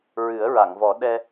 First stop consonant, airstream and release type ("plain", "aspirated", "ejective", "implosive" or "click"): implosive